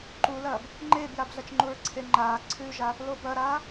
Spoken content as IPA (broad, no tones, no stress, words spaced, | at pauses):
ǃulɐːb | ŋ͡ǃeːbjabɮɐt͡ʃŋ͡ǃuɹ ǀʰeŋ͡ǃaː ǀʰʉʒa | lobɐɾaː